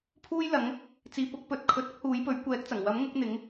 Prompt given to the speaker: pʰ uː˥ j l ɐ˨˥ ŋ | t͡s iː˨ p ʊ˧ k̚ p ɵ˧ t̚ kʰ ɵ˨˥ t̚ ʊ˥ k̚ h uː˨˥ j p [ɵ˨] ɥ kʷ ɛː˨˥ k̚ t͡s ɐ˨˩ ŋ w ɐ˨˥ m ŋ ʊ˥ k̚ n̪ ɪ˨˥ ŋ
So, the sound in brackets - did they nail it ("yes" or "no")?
no